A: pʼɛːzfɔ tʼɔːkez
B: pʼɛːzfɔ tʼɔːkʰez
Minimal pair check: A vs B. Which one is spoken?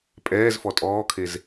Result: B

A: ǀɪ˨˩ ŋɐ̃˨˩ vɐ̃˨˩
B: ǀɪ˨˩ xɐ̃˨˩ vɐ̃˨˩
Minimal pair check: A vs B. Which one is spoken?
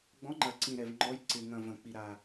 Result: A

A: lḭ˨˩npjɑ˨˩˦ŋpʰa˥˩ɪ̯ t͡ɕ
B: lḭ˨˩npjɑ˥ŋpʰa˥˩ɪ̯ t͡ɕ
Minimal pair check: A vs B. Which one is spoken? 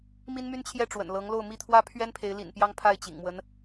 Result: B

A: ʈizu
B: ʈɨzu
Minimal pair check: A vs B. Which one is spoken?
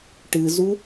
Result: B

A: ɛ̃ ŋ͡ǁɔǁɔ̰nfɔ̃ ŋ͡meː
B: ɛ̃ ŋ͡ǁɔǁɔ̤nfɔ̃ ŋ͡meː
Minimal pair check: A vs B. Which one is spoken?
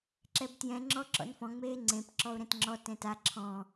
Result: A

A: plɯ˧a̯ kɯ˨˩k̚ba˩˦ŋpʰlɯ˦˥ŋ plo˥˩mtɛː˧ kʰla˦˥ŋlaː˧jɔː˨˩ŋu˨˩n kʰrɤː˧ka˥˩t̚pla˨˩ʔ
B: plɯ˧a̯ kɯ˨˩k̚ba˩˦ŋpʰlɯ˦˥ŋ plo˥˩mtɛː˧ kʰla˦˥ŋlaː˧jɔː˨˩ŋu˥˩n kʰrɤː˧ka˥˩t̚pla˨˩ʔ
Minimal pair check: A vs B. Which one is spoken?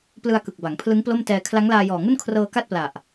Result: B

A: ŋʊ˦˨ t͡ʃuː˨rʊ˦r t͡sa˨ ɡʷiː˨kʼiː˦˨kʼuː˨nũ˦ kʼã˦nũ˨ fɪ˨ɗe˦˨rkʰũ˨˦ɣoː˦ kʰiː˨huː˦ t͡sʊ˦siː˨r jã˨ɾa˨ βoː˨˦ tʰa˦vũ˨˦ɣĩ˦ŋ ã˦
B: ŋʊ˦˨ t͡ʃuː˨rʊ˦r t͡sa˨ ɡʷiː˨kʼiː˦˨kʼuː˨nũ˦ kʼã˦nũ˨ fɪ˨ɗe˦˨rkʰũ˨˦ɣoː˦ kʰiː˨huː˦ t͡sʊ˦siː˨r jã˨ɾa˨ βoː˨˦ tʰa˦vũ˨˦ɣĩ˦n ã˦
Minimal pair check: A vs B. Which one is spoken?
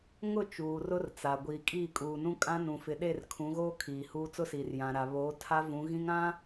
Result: A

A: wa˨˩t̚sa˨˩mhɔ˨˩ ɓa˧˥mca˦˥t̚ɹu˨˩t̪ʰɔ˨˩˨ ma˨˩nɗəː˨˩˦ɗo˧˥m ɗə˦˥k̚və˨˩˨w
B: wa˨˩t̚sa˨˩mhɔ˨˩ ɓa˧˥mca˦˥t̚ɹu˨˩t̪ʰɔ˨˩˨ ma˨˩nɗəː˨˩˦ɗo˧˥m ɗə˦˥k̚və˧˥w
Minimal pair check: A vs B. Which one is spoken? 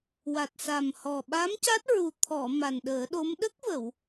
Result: A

